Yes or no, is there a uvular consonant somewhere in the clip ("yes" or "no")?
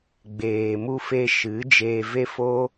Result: no